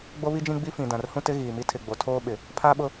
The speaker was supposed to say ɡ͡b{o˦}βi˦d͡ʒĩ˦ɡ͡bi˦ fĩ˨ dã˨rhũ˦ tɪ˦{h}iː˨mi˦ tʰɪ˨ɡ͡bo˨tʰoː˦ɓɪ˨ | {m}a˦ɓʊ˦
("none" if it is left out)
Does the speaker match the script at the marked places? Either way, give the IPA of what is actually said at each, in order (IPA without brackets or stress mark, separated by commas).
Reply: o˦, ɣ, pʰ